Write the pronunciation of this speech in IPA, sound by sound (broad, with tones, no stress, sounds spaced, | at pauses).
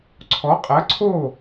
ǀʰ ɔ˨˦ qʼ ɐ˨˦ ǀʰ o˥˨